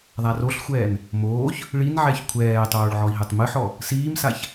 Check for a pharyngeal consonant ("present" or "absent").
present